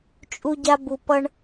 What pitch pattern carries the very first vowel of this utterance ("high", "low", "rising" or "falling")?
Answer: high